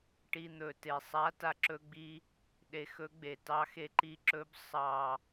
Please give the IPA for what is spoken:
ʈ i˧ n̪ ɵ˨˩ t e˨˩ sˤ a˧˥ t a˧ ǁ ɵ˧ ɡ͡b i˧ | ɗ e˧ x ɵ˧˥ ɡ͡b e˨˩ t ɑ˧ x e˧ ǃ i˧ ǁ ɵ˧˥ b sˤ ɑ˨˩

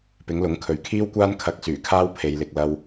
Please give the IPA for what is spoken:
p ɪ˨˥ ŋ l ʊ˨˥ ŋ kʰ ɵ˨ ɥ kʰ iː˥ w kʷ aː˥ n kʰ ɐ˧ k̚ s yː˨˩ kʰ aː˥ w pʰ e˨˧ j l ɪ˨ k̚ l ɐ˧ w

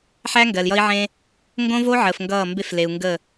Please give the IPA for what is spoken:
ħ æ˦ ŋ ɡ ɜ˨ l j ʌ˦ i̯ ʕ ẽ˦ | ŋ ɡ õ˦ v o˦ ʕ əː˨ f ŋ ɡ ʌː˦˨ m b e˦ f l e˨ u̯ ŋ ɡ ə˦˨

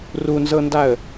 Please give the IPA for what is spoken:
r u n z ɤ n d a ə̯

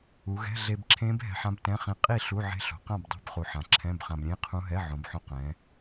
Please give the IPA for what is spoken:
u˩˧ ɣ ɛ̤˧˥˧ ɮ e˧ b ǁʰ ẽ˦˥ b ɦ ɛ̤˧ ħ ã˦˥ b t ɛ̃˧˥˧ χ ĩ˧ qʼ i˥˨ ɬ u˧˥˧ ʕ e̤˦˥ ɬ o̤˩˧ q ã˥˨ b dˤ e̤˧˥˧ b χ u˩˧ ħ ã˩˧ ǁʰ ɛ̃˧˥˧ b χ ã˧ b ɾʲ ẽ˧˥˧ qʰ ũ˦˥ ɦ ɛ˧˥˧ ʕ õ˩˧ b ħ õ˧ q ɛ̃˩˧

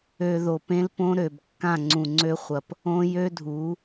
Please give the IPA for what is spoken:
ø˧ ð o˨ p ẽ˦ l p õ˦ ɾ ø˨ b kː ã˦˨ ŋ͡ǀ ũ˨ ŋ͡ǀ ø˦ χʷ ɐ˨ p | õ˦ j ø˦ dʱ u˨˦

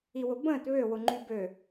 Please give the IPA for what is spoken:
i w ʊ b ə̃ː t β ø w ʊ ŋ͡ǃ y b ø

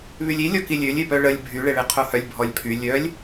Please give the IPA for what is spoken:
β y lʲ i lʲ ɔ k i lʲ ø lʲ e p œ ɭ ə lʲ bʱ y ɭ e ɭ e qʰ o h œ lʲ bʱ ɔ lʲ pʰ y lʲ œ lʲ

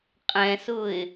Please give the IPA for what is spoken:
qʼ ɛ̃ s ʊ ɪ̯

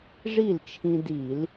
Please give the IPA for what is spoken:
ʐ i˥˩ l t͡ʃʰ ĩ˧ d i˧˩˧ l

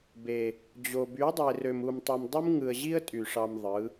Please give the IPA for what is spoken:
b e˨ | d͡ʑ o˨ b y˨˦ dˤ e˨ r ø˨ m u˨ m tˤ ɯ˨ m dˤ ɯ˦ m ŋ ɯ˨ ə̯ ʑ i˦ ə̯ tʼ y˨ ʂ ɑ˧ m ðˤ ɯ˨˦

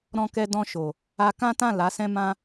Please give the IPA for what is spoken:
ɾ ɔ̃˧ k ɛ˧ d ɔ̃˧ ʃ o˨ | a˧ k ã˦ t ã˦˨ l a˨˦ s ɛ̃˦ m ã˦

